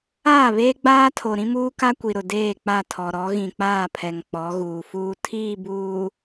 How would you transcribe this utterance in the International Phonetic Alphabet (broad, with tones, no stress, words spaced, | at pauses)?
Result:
aː˦˨βeː˦ ɡ͡baː˦tʰo˨ ɾĩ˦muː˦ka˦kʷi˨ ɾʊ˨deː˦˨k͡pa˦˨ tʰɔ˨ɾɔ˨˦ ɣĩ˨k͡paː˦˨ pʰɛ˨ŋk͡pɔ˨˦ɣuː˨fuː˦ tʰiː˦˨buː˨